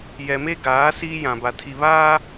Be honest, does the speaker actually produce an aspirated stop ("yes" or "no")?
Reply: yes